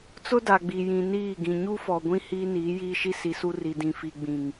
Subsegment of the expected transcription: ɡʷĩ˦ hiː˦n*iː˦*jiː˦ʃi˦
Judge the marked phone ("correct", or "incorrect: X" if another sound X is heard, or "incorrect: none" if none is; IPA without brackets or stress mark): incorrect: iː˨˦